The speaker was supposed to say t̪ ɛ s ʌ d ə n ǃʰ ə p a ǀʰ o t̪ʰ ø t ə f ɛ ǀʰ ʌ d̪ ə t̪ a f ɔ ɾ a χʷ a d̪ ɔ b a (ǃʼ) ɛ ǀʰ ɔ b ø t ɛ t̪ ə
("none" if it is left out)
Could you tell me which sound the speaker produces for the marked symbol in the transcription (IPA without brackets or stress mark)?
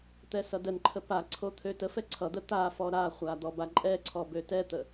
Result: ǃʼ